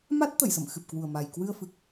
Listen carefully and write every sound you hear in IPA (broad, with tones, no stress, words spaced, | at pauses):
ma˦˥t̚t̪ə˧˩jsə̰˧˨m xɨ˨˩p̚kwu˨˩ə̯ma˨˩j kwɨ˧ə̯fɨ˨˩k̚